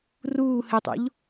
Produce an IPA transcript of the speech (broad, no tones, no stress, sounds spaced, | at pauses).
r uː h ɘ tˤ o̰ ʎ